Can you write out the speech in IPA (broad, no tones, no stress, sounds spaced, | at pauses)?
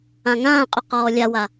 ã ŋ ãː qʼ ʏ q ɔː lʲ a w a